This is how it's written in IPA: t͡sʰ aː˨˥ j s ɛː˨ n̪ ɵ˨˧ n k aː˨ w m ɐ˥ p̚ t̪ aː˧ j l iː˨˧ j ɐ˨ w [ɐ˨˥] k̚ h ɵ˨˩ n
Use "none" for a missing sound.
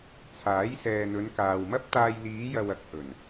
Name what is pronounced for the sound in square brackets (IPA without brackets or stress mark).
ɐ˨